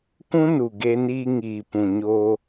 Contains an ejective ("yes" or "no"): no